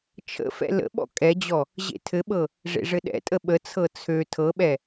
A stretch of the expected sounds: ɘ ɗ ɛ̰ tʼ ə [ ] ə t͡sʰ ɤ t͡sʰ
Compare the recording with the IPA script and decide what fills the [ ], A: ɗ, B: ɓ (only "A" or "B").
B